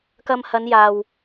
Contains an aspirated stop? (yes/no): no